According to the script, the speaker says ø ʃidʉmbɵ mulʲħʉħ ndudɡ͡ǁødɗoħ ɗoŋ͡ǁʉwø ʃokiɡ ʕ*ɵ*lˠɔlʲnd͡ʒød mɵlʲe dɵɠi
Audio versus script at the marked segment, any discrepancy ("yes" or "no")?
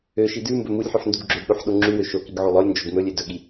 yes